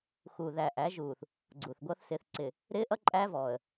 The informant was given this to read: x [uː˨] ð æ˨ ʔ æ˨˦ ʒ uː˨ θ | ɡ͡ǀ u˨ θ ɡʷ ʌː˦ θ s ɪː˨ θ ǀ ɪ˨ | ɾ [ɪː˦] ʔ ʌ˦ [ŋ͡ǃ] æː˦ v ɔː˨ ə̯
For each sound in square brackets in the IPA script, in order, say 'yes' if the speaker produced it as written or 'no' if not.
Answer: yes, yes, no

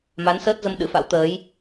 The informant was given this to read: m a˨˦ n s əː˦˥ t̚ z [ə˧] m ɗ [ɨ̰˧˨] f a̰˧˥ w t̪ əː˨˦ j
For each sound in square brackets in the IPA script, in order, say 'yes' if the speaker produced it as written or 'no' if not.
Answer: yes, no

